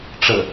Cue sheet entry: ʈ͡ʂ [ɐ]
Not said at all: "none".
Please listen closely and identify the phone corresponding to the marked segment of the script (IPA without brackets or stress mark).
ə